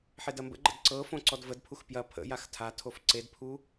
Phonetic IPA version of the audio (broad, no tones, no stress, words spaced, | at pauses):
ħedɐmbə̰ɡ͡ǃə̰d ǀɤ fõǀɔdvədpʰux pjɐ pʰə̰jax tʰa tʰofǀedpʰu